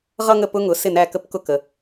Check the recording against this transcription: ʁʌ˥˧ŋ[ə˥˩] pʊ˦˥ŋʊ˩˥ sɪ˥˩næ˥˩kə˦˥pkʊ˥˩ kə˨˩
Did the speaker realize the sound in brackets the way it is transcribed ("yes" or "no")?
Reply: yes